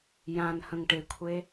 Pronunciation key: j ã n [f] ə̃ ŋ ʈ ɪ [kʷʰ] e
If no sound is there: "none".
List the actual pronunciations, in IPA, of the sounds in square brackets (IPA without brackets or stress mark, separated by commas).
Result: h, kʷʰ